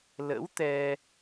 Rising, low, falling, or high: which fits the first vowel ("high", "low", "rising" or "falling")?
rising